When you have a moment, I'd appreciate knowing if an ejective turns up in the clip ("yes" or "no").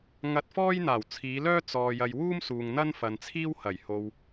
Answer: no